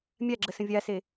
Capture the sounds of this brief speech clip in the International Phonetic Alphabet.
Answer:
mʲ a ɡ͡ǁ ə s ə̃ vʲ a s e

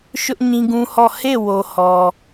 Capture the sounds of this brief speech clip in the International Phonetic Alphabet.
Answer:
ʃ ʊ˦ ʔ ɲ ĩ˦ ɡ ũ˦ h ɔ˦˨ h e˦˨ w o˨ h ɔ˨

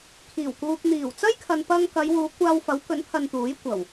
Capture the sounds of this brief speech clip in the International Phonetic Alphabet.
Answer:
kʰ iː˨˩ w k uː˨ k̚ n̪ iː˨˩ w t͡s ɐ˥ j kʰ ɐ˨ n p ɐ˧ ŋ k ɐ˨˧ j w uː˨˧ kʷ aː˧ w f ɐ˨˥ w k ɵ˨˥ n pʰ ɐ˧ n t̪ uː˨˥ j kʷ ɐ˨˩ w

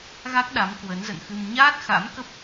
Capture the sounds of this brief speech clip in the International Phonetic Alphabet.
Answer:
ɣ a˦˥ k̚ ɗ a˨˦ m k w ə˨˦ n z ə̰˧˨ n x ɨ˧ m ɲ aː˦˥ t̚ x a̰˧˥ m k ə˦˥ p̚

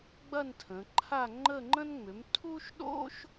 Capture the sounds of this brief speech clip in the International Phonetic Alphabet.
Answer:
ɡ͡b ɐ˥˧ n tʰ ə̃˩˧ ǃʰ a˥˧ ŋ͡ǃ ə˥˧ ŋ͡ǃ ə̃˥ n ŋ͡m ʏ˩˥ m tʰ u˥ ʃ ɗ o̰˥ ʃ

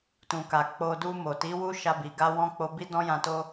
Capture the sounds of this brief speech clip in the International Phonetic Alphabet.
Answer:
t ũ˨ k a˨ k͡p o˧ d u˧ m o˨ t i˨˦ w u˦ ʃ a˧ b i˨ ɡ a˧ w ɔ̃˧ k͡p o˧ b i˦ d ɔ̃˦ j ã˧ t o˦

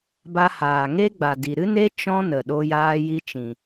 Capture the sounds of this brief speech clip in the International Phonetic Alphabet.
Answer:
b a˧ h aː˨ ŋ e˦ ɡ͡b a˨ d i˨ ɾ ɨ˦ n e˦ t͡ʃ ɔ̃˦ n ə˨ ɗ o˧ j aː˧ j i˧ t͡ʃ ĩ˨

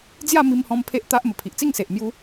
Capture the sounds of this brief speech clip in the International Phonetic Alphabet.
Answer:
d͡z j a˥˧ m i˧ m h ɔ̃˧ m pʰ e˦ ʔ t̪ a˦ ʔ m ə˨˩ pʰ i˨ ʔ t͡s i˥˧ ŋ s e˨ ʔ m j u˦

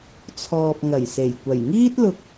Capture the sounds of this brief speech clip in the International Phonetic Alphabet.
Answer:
t͡sʰ ɔː˨ p̚ ŋ ɐ˨˩ j s e˨˩ j kʷ ɐ˨˩ j ŋ iː˥ t̚ l ʊ˧ k̚

